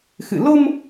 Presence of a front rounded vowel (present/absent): absent